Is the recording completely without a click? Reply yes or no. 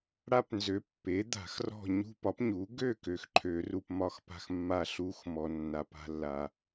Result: no